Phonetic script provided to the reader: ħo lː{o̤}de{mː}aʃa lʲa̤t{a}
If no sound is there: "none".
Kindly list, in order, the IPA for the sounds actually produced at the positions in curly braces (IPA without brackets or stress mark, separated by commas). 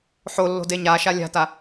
o̤, ɲ, a